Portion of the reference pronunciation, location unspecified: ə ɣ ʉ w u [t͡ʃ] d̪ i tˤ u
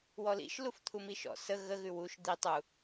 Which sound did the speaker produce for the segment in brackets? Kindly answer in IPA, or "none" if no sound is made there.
ʃ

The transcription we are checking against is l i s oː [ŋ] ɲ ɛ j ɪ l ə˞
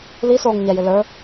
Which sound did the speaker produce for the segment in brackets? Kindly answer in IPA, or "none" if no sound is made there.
ŋ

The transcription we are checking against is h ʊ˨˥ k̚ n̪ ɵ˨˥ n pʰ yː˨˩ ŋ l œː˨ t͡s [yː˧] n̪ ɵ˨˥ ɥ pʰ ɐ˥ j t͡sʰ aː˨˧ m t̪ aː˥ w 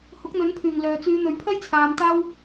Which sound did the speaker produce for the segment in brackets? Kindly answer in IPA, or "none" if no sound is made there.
yː˨˧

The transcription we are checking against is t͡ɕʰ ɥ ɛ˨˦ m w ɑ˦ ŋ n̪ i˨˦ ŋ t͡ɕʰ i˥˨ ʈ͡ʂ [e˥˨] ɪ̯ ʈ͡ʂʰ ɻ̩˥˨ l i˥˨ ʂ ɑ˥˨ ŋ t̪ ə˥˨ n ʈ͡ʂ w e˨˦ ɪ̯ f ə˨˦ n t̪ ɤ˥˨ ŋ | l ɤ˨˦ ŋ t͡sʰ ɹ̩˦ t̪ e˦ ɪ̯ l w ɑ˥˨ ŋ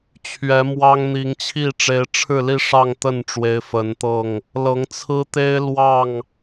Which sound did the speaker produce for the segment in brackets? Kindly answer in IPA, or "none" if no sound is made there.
e˨˦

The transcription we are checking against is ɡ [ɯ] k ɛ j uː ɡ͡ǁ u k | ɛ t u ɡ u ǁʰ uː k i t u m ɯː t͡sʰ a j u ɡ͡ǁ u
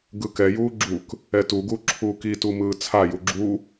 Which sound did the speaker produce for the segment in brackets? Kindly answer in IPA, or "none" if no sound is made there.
ɯ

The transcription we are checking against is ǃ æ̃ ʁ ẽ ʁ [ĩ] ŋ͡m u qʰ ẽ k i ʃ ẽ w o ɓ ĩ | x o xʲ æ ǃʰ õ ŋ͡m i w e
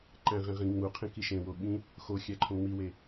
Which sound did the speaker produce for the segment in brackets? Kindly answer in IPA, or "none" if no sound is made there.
ĩ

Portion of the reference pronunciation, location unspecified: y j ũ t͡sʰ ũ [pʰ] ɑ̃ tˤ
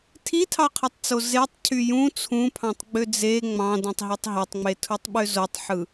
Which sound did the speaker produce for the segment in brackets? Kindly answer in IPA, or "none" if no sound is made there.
pʰ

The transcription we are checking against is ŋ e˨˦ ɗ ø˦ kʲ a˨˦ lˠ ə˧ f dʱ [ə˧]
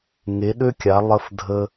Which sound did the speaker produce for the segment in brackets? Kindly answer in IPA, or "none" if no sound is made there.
ə˧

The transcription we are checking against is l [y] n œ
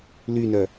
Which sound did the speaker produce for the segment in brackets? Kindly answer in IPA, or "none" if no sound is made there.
y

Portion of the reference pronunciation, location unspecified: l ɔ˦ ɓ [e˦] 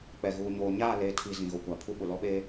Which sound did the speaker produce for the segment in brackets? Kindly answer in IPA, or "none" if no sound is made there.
eː˦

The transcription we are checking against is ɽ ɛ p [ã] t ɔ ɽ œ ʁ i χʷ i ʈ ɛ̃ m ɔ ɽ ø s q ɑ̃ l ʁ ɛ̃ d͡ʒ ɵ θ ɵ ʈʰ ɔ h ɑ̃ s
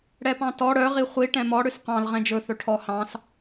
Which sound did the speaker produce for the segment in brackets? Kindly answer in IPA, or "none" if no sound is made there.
ɑ̃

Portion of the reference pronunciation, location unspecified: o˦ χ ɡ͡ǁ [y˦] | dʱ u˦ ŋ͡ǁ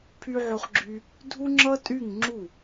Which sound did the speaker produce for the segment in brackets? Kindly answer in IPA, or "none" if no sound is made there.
y˦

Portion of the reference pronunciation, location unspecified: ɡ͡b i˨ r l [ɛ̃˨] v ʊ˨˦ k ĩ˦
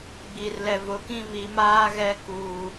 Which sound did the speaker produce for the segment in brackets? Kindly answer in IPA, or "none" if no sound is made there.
ɛ˨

